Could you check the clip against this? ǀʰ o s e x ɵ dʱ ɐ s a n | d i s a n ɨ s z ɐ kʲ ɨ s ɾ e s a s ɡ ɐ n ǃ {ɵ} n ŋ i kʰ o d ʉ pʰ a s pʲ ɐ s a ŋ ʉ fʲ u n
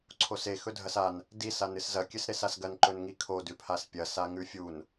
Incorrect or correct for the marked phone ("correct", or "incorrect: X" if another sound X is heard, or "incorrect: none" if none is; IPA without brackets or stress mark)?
correct